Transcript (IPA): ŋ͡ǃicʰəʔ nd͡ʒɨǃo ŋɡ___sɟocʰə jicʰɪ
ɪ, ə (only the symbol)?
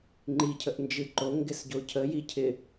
ɪ